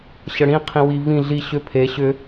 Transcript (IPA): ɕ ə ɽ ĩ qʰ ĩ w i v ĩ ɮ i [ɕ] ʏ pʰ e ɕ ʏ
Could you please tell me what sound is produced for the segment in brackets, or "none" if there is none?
ɕ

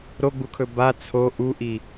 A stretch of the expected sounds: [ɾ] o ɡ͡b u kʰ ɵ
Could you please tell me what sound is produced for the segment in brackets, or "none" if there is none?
ɾ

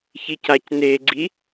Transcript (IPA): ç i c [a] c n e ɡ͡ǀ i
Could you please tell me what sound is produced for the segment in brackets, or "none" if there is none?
a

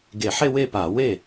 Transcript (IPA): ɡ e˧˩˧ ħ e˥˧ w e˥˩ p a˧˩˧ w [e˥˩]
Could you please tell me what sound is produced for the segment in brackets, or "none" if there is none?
e˥˩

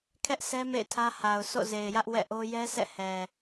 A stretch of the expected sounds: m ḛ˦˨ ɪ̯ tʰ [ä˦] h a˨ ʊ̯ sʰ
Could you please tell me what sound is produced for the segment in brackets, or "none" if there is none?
ä˦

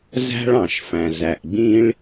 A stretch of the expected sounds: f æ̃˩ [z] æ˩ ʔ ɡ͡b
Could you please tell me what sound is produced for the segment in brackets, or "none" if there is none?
z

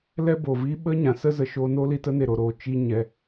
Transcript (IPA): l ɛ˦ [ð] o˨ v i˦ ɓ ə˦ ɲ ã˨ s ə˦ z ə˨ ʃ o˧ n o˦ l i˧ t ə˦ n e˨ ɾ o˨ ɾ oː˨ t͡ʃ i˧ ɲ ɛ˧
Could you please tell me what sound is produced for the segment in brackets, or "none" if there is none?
b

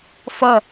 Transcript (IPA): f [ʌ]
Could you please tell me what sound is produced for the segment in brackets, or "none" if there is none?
ʌ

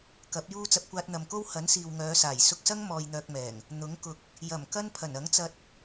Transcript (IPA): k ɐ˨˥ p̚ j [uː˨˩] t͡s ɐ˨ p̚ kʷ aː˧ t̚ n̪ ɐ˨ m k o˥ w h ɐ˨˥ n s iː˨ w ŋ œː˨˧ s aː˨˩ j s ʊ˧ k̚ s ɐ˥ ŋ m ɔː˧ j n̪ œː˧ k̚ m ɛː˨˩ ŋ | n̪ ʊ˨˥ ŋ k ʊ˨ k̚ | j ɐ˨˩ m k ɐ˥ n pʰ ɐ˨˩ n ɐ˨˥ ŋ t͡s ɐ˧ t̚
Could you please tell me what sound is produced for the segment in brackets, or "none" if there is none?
uː˥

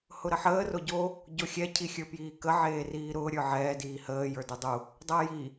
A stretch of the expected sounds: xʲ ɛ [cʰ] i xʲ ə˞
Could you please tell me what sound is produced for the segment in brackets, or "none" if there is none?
cʰ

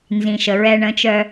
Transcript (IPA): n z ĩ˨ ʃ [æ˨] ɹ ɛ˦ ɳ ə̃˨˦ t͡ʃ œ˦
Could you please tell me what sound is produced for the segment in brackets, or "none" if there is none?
ə˨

